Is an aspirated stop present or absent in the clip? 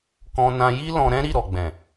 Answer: absent